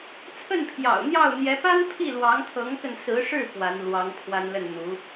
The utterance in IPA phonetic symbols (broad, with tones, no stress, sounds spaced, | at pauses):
t͡sʰ ə˥˩ n pʰ j ɑ̰˨˩ ʊ̯ n̪ j ɑ˥˩ ʊ̯ n̪ j ɛ˧˥ p a˥ n pʰ i˥˩ l w ɑ˧˥ ŋ t̪ʰ ɤ˧˥ ŋ k ə˧ n s ɹ̩˧˥ ʂ ɻ̩˥˩ p w a˧˥ n l w ɑ˧˥ ŋ pʰ w a˥ n l ə˥˩ n n̪ u˧˥